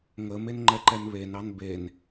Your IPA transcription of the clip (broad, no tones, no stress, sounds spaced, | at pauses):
ŋ ə m e n ŋ͡ǃ ɛ ǃ ɛ n β e n ɑ n b e n